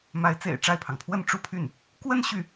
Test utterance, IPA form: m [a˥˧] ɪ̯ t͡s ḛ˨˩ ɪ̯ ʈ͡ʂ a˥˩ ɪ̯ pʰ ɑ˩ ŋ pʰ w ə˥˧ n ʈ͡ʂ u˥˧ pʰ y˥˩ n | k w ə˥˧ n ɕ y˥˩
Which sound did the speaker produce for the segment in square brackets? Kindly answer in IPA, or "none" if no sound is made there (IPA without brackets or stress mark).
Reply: a˧˥